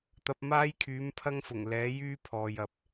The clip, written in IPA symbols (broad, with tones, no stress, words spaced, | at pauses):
t̪ɐ˧p̚ maː˥jkʰyː˨˥mpʰɐ˥ŋfʊ˨˩ŋ lɛː˨˥jyː˥pʰɔː˨j ɐ˨p̚